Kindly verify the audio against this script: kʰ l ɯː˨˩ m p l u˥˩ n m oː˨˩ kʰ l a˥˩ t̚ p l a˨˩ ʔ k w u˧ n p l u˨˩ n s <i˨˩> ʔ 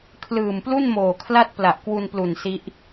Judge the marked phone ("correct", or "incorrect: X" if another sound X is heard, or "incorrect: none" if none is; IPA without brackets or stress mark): incorrect: i˦˥